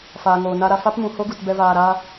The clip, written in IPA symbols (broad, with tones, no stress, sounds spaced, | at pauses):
f aː˨ ŋ oː˨ n a˧ ɾ a˧ f a˦ p m ũ˨ h o˦ ɡ u˨ t b ɛ˦ v aː˧ ɾ aː˦